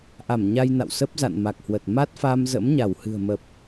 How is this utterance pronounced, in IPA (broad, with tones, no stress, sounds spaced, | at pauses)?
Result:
ʔ a˧˩ m ɲ a˧ j n a̰˧˨ w s ə˦˥ p̚ z a̰˧˨ n m a˨˩ k̚ h w ə˨˩ t̚ m a˦˥ t̚ f a˧ m z ə̰˧˥ m ɲ a˧˩ w h ɨ̤˨˩ ə̯ m ə˨˩ p̚